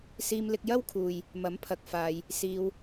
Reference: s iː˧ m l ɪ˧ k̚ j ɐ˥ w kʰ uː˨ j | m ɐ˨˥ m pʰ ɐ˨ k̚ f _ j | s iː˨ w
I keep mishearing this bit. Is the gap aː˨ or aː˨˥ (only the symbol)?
aː˨